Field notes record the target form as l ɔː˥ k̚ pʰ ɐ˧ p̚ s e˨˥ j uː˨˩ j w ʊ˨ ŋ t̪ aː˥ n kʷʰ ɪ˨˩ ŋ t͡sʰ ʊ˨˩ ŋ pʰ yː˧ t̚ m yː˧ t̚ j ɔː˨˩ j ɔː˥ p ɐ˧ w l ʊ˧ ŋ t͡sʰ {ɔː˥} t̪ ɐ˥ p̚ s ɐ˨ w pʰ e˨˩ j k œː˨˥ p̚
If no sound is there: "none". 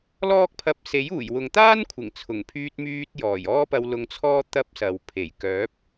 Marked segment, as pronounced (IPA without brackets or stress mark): ɔː˥